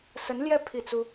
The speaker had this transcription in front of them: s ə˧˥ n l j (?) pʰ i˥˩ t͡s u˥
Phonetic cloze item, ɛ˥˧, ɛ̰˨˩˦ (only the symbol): ɛ˥˧